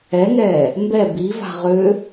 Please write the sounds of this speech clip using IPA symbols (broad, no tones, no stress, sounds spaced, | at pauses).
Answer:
ɛ ŋ ɛː | m b ɛ b i v a̤ ʁ ø